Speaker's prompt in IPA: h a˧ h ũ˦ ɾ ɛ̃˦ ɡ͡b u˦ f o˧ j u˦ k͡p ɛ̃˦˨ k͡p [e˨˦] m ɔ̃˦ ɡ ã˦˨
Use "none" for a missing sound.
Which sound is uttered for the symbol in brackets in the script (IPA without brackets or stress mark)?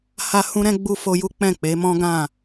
e˨˦